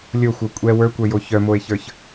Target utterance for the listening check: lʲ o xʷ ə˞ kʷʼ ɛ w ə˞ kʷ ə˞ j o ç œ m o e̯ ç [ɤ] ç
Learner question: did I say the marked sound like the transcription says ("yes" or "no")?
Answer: no